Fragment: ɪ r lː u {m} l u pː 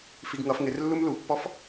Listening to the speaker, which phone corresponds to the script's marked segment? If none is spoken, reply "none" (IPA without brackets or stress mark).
m